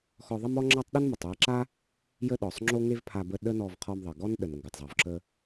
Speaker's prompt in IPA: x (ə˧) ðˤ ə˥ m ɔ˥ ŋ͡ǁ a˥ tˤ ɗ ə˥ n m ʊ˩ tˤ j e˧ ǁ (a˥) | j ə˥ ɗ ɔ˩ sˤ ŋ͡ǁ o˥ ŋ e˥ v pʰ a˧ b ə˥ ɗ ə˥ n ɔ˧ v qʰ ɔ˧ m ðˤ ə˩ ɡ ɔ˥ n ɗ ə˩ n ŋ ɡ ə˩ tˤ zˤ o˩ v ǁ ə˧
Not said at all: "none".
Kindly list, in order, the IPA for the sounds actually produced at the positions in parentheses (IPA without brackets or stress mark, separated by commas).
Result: ɔ˧, a˥